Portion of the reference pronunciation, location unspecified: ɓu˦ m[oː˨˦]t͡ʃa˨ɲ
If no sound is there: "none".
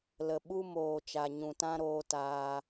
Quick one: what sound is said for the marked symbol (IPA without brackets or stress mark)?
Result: oː˨